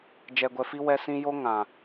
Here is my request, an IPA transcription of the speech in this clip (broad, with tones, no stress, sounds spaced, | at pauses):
d͡ʒ ɛ˨ ɡʷ ɛ˨ f i˧ w ɛ˧ s ĩ˧ j o˦ ŋ ã˨